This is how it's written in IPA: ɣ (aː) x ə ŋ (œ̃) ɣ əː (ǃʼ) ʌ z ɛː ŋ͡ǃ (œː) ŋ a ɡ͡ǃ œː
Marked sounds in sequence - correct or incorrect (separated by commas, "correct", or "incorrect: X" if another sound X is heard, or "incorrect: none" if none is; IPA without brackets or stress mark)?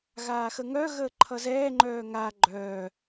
correct, incorrect: œ, incorrect: ǃʰ, correct